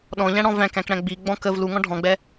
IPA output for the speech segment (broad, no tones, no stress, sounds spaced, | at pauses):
ɗ ɔ̃ ʎ æ̃ ɽ ɔ̃ v æ̃ k æ̃ k ɽ æ̃ ɡ͡b i ɡ͡b ɔ̃ k ə v l u ŋ ɔ̃ ɖʱ ɔ̃ ɡ͡b ɛ